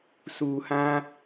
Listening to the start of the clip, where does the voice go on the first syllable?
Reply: low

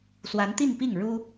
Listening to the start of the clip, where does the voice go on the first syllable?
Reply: rising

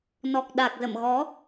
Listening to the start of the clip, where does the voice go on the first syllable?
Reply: low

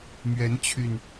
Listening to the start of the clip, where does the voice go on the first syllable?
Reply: rising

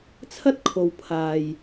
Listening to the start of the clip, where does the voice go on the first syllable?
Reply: high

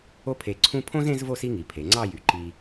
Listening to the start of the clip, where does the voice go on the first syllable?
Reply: high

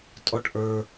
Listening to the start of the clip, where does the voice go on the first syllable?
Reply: high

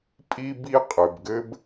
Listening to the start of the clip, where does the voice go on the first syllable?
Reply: high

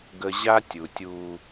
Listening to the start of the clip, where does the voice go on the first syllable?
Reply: low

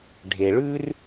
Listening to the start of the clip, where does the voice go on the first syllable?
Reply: low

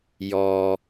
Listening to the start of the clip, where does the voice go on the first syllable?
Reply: low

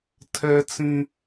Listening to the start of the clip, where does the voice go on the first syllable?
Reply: high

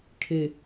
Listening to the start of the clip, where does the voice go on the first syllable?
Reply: low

